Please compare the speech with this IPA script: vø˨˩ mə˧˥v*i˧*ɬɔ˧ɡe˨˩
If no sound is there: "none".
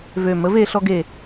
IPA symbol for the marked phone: e˧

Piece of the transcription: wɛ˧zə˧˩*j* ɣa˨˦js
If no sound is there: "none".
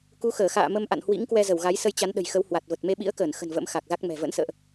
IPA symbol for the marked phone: w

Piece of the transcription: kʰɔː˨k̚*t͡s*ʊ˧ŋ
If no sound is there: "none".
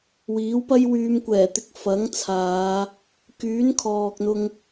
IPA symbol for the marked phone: n̪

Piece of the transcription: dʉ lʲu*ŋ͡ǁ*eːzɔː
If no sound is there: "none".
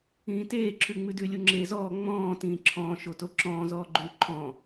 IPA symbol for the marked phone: ŋ͡ǁ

